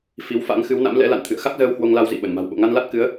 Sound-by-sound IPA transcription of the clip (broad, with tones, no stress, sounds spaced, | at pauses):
f i˨˦ w f a̰˧˥ ŋ x ɨ˨˦ w n a̰˧˥ m l ɛ̰˧˥ l a̰˧˨ n t̪ʰ ɨ̰˧˨ ə̯ x a˦˥ k̚ z əː˧ w h w o˧ ŋ l a˧ w z ḭ˧˨ ɓ ə˧˩ n m a̤˨˩ w ɓ o̰˧˨ ŋ a˧ n l a˦˥ t̚ k ɨ˨˦ ə̯